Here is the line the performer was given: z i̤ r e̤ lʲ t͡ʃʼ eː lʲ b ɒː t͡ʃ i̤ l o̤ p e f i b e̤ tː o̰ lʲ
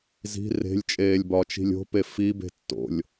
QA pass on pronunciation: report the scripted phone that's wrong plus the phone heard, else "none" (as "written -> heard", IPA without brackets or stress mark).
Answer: l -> lʲ